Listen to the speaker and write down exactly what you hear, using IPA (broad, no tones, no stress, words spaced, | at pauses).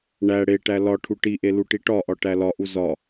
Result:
ɳæ ɽeʈæ lɒ ʈʰuʈiʔe luʈiʈɒʔɒ ʈælɒʔu zɒ